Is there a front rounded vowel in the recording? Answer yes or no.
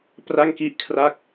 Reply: no